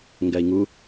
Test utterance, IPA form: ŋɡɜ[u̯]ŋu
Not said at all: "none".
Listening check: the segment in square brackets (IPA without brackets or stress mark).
i̯